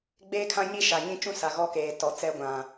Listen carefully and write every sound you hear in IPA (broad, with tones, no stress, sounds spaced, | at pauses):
ɡ͡b eː˦ kʰ ã˦ ɲ i˦ ʃ a˨ ɲ ĩ˦ t͡ʃ ũ˦ s a˨ ɣ ɔ˦ k eː˨ t ɔ˨ t͡s ɛ˦ ɡʷ ã˨